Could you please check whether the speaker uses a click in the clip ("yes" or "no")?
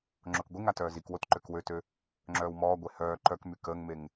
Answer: yes